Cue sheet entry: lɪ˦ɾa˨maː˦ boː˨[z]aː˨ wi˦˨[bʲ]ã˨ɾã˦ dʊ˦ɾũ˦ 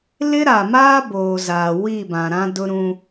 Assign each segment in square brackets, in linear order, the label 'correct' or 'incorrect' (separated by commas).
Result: correct, incorrect